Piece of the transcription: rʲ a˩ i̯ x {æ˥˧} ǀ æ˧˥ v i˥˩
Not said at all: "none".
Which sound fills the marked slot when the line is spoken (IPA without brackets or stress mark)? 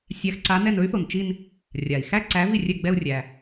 æ˥˧